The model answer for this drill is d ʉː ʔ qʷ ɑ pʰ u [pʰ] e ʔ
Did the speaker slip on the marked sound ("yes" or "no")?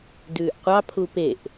yes